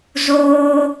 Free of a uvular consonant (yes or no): yes